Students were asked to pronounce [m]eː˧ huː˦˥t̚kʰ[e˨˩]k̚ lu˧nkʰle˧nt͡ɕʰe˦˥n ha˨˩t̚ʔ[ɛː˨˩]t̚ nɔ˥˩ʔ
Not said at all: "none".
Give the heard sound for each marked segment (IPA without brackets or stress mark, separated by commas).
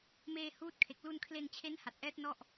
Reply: m, e˨˩, ɛː˦˥